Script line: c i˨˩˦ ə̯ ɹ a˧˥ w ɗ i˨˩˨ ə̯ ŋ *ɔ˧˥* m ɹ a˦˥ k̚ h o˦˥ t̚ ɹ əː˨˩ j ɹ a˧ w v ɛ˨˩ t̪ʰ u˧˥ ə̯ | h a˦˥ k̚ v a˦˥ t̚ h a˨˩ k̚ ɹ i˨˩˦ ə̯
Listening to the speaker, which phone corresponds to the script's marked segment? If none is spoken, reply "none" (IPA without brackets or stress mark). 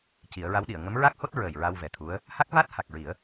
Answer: ə˧˥